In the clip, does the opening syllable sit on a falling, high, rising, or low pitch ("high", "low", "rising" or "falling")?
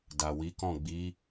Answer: low